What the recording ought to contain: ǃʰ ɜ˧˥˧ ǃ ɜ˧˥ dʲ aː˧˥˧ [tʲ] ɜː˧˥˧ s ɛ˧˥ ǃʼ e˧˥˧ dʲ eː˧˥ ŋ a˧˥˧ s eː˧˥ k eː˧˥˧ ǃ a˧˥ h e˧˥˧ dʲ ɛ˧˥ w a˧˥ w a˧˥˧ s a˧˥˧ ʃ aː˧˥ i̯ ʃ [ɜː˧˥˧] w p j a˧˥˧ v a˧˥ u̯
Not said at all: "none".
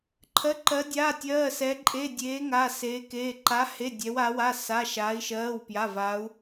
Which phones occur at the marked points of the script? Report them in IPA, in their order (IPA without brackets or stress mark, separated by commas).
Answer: tʲ, ɜː˧˥˧